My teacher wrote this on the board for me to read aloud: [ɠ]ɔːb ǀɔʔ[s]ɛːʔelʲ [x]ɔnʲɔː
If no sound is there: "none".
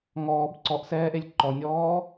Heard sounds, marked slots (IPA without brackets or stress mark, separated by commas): ŋ, s, ǃ